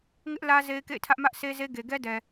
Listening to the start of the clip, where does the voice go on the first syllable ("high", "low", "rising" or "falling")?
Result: high